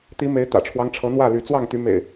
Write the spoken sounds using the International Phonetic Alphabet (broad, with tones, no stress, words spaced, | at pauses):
t̪i˨˦me˨˦ɪ̯ t̪ä̰˨˩ʈ͡ʂʰwɑ˦ŋʈ͡ʂʰɤ˨˦n̪wä˥˨ ly˨˦ t͡swɑ˥˨ŋt̪y˨˦ mḛ˨˩ɪ̯